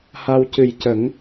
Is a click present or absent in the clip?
absent